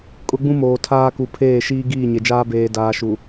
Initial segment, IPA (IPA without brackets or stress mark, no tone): kʼ